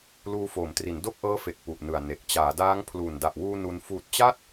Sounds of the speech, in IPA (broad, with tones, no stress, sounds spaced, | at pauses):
l uː˧ f oː˩˦ m t r i˩˦ n d o˥˩ k̚ ʔ ɤː˦˥ f e˨˩ k̚ p u˨˩ ʔ n ɯ˨˩ a̯ n e˨˩ k̚ t͡ɕ aː˩˦ d aː˦˥ ŋ pʰ l uː˨˩ n d a˨˩ ʔ w uː˧ n u˧ n f uː˨˩ t̚ t͡ɕ a˥˩ t̚